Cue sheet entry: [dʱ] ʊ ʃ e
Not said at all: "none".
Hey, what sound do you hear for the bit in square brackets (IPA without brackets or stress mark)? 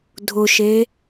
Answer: dʱ